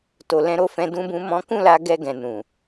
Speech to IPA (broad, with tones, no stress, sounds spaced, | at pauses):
t o˧ l ɛ̃˦ ɾ o˦ f ɛ̃˦ d ũ˦ b ũ˦ m ɔ̃˦ k ũ˦˨ l a˧ ɡ ɛ˧ ɡ ɛ̃˨ n ũ˨